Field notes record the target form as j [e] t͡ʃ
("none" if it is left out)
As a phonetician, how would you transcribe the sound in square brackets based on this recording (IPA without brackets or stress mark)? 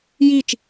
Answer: i